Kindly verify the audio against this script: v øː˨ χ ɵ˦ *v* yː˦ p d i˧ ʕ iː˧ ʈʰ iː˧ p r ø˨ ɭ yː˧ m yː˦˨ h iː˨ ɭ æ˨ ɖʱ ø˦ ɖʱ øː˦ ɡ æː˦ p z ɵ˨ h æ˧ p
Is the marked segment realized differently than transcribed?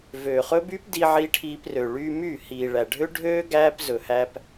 yes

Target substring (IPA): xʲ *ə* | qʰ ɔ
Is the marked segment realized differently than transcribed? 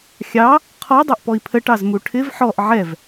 yes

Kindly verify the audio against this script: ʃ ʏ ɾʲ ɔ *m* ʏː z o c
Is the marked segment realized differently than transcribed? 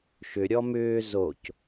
no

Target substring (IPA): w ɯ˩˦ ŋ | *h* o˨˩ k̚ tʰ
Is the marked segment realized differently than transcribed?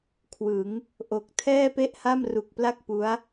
yes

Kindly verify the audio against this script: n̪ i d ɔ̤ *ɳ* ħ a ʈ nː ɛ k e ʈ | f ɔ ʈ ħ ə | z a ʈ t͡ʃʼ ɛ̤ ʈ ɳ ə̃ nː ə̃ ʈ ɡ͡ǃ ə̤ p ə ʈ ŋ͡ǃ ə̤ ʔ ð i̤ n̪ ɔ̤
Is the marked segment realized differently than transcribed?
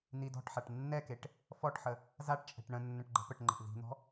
yes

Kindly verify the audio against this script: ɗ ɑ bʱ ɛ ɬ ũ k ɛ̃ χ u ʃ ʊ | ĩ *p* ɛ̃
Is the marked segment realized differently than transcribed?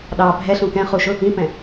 no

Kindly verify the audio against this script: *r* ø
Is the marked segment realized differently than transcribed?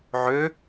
yes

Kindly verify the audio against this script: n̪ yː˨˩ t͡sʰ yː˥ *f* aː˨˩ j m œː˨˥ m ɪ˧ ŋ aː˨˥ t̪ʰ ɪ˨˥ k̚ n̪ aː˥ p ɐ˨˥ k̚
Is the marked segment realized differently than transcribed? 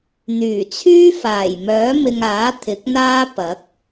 no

